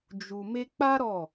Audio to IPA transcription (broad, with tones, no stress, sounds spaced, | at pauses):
d͡ʒ u˨ m e˧ k͡p a˦ ɾ ɔ˦˨